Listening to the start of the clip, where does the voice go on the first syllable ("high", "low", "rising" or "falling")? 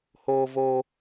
high